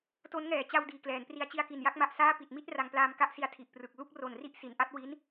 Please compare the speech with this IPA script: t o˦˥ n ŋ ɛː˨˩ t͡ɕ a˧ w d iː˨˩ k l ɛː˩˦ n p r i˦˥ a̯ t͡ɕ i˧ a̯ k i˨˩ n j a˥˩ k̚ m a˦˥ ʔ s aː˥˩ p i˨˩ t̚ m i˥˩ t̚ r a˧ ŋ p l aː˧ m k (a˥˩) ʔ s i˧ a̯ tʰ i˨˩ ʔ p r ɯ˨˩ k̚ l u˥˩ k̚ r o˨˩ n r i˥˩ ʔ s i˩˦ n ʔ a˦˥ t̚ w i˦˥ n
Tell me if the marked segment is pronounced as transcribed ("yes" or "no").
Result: yes